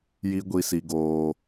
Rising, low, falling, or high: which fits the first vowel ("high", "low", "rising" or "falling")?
high